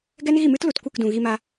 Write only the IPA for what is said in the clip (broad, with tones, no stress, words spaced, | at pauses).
ɡɛ˦nɣi˦˨mɨ˦t lu˨tkʷɨ˦˨kdũ˨ ɣi˧ma˧